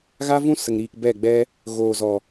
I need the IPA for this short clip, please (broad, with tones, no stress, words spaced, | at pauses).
ɣa˦vũ˦sə˨ŋɾiː˨k bɛ˦˨ɡ͡bɛ˦ | ɣoː˨zɔ˨